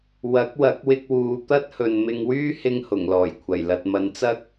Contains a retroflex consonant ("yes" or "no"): no